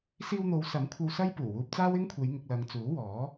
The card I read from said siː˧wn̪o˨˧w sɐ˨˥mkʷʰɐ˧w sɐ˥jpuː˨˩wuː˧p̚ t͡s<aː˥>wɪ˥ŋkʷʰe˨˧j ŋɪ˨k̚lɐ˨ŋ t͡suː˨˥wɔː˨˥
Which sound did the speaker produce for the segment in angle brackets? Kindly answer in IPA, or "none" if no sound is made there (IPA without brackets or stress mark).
aː˥